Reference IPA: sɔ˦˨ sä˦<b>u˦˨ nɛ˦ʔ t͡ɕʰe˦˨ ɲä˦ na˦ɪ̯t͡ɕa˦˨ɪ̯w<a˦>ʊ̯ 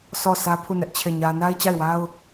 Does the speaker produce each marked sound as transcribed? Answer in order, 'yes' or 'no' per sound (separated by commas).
no, yes